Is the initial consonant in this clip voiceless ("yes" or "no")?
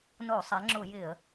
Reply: no